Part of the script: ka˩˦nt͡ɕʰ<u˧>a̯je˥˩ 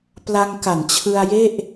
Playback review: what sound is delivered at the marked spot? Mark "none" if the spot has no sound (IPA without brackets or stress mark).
ɯ˧